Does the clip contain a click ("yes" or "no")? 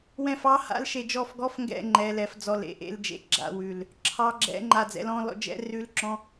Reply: yes